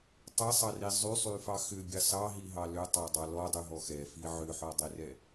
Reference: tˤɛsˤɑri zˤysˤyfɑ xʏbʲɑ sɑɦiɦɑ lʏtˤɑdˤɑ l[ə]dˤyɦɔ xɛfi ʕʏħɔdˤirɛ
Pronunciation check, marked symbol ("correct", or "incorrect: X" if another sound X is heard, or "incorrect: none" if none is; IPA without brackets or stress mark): incorrect: ɔ